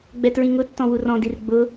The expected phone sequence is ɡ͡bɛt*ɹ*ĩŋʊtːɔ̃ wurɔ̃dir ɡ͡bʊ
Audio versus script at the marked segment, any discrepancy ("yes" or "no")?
no